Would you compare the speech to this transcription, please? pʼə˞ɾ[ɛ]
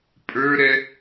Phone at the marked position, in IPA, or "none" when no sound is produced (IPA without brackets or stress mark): ɛ